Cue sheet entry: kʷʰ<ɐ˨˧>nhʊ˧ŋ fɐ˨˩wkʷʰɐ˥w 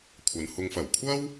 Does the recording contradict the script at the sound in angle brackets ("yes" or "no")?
no